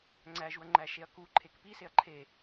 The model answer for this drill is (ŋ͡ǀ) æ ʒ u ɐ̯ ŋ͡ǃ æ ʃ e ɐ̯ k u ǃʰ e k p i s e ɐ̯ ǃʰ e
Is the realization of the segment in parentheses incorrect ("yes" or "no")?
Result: no